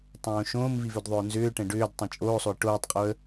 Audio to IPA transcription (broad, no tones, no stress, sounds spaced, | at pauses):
tˤ õː ʃ õː m v i v ʏ d ðˤ ʏ ʊ̯ n z ʏː ʈ ɛ̃ ɖ ʏː d tˤ ɛ̃ t͡ʃʼ oː sˤ o ɪ̯ ʈ oː tˤ qʼ o ə̯